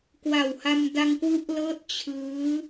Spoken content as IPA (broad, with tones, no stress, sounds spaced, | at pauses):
k w a˨˩ w h a˧ m d a˧ ŋ k w u˦˥ ʔ l ɤː˦˥ t̚ t͡ɕʰ ɯː˦˥